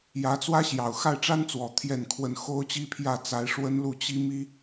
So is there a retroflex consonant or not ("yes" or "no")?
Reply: yes